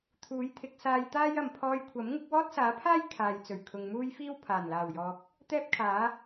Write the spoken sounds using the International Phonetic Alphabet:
t̪ʰ uː˨˥ j t̪ʰ ɪ˨˥ k̚ s aː˧ j t̪ aː˥ j ɐ˨ m pʰ ɔː˧ j kʷʰ ɐ˨˥ m ŋ ɪ˨˥ k̚ w ɔː˥ t̚ s aː˨˥ pʰ aː˥ j kʰ aː˨ j t͡s ɵ˨˩ ɥ kʰ ʊ˨ ŋ m uː˥ j f iː˥ w pʰ aː˨˩ n l aː˨˩ w j ɔː˨ k̚ | t̪ ɛː˥ p̚ kʰ aː˨˥

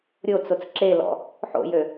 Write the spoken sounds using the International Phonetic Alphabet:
ɾʲ o t͡s o t͡s ǁ e l ɔ̰ | ħ o̰ j ø

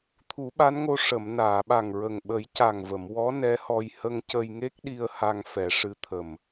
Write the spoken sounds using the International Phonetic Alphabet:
t̪ʰ u˨˩˦ ɓ a˧˥ n ŋ o˧ ʂ ə˨˩˨ m n aː˨˩˨ ɓ a˨˩ ŋ ɹ ə˨˩ ŋ ɓ ə˨˩˦ j c a˨˩ ŋ v ə˨˩˨ m w ɔ˧˥ n ɛ˧˥ h ɔ˧ j h ə˧ ŋ c ə˧ j ŋ e˦˥ k̚ ɗ i˧ ə̯ h a˧ ŋ f ɛ˨˩˦ ʂ ɨ˧˥ t̪ʰ ə˨˩ m

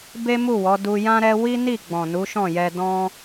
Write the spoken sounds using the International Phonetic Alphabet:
b e˦ m u˦˨ w ɔ˨˦ d u˧ j ã˦ ɾ ɛ˦ w i˦ n i˦˨ ɡ͡b ɔ̃˨ n u˨˦ ʃ ɔ̃˦˨ j ɛ˧ d ɔ̃˦

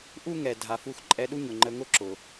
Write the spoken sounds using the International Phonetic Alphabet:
ʔ u˥ ŋ ɛ˩ dʱ a˩ f u˧ x ǃʼ ɛ˧ ɗ u˥ ɲ ʊ˩ ŋ͡ǃ ə˧ ŋ ʊ˥ ǁ ʊ˩

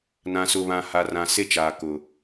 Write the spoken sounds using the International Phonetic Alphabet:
n ã˨ s ʊ˨ β ã˨ h a˨ r ã˨ s e˦ t͡ʃ aː˨ k ʊ˨

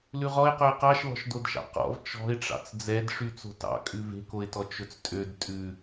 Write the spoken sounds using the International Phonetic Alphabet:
l ʉ ʁ ɔ ɪ̯ q ɵ ɪ̯ q ɑ ʃ l ɔ̤ ʃ d o d ʃ ɑ̰ q ɔ̰ v t͡ʃ ɔ̤ ɪ̯ ʈ͡ʂ ɑ̰ t͡s d͡z ɛ d ʂ y t͡s o̤ t ɑ̰ kʼ ʉ v e̤ k o ɪ̯ t ɔ t͡ʃ ɵ t͡s tʼ ø d tʼ ʉ

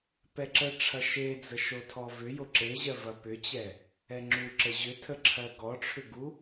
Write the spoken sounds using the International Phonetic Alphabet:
p ɛ ǁ ə ʈ͡ʂʰ ɐ ʃ e d͡z ə ʃ o tʰ ɔ v ʏ j o ǁ e ʑ ɜ v ɐ p ʏ t͡ɕ ɛ | ɛ ŋ͡ǁ u ǁ ə ʑ ʏ tʰ ə ǁʰ ɜ ɡ ɔ ʈ͡ʂʰ ʏ ɡ u

